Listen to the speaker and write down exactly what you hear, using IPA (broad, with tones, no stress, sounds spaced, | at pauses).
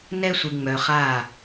n ɛ˦ sʷ ɨ˨ ŋ͡m œ˨ χ a˦˨